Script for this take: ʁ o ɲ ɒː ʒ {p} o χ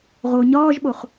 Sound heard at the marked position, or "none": ɓ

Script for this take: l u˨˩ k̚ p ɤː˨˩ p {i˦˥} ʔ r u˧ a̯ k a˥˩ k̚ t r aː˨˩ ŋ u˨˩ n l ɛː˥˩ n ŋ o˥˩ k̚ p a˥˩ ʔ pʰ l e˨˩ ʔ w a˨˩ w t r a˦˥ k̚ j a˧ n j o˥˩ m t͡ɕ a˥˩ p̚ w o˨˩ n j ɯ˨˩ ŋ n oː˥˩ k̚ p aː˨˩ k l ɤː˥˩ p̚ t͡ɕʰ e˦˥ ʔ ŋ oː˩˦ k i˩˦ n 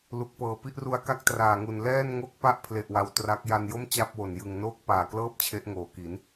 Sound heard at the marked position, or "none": i˥˩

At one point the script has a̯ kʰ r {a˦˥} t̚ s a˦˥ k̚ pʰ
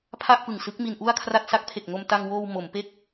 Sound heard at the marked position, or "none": a˥˩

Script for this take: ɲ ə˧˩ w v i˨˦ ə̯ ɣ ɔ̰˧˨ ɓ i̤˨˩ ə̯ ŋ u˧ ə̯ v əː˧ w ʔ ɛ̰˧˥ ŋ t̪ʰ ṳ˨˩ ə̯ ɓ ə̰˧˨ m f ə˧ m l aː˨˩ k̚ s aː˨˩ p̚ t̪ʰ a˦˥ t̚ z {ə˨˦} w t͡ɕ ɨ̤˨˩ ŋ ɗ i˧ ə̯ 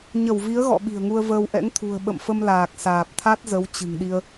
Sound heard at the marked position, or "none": ə˨˦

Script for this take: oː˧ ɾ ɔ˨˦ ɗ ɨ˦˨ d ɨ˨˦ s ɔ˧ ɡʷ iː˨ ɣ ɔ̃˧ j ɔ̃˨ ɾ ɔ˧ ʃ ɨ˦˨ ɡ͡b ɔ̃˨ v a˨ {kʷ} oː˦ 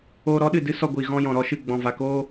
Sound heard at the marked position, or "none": k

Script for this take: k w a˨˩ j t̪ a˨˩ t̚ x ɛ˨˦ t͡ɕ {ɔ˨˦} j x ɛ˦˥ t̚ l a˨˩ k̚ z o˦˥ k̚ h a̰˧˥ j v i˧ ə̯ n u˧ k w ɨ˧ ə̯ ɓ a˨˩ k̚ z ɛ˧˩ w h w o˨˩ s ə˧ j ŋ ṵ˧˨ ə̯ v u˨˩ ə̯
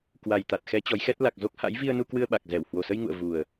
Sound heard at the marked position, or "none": ɔ˨˦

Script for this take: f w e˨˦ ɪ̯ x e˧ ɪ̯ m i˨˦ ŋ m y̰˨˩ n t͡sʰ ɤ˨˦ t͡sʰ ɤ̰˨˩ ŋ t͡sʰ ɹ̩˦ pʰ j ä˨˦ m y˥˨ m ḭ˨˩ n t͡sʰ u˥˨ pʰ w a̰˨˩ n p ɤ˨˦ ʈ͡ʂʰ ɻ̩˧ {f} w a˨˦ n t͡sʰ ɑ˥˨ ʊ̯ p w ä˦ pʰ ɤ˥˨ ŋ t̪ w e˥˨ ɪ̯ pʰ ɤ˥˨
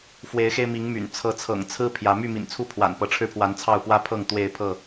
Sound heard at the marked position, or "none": pʰ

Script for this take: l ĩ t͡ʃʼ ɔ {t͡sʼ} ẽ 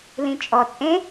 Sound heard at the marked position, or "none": t͡sʼ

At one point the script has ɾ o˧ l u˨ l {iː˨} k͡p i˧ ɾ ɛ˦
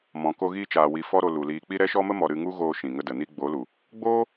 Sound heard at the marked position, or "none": iː˨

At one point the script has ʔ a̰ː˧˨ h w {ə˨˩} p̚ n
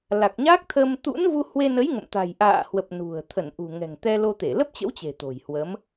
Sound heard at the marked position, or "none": ə˨˩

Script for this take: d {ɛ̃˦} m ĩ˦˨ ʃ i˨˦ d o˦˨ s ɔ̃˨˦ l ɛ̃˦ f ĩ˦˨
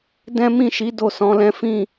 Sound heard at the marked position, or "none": ɛ̃˦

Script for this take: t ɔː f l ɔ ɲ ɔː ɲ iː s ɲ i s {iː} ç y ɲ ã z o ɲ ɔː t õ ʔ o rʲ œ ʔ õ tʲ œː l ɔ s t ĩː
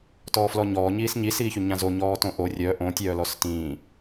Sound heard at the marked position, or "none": iː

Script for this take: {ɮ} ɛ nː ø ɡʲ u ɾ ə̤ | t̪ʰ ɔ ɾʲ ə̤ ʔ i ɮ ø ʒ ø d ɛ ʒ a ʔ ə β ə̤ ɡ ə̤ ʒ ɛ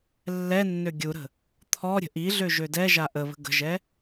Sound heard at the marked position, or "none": lː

